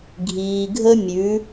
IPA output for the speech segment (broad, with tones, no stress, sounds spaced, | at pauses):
ɡʱ iː˩ ɡʱ ə˧ mʲ ʉ˩˧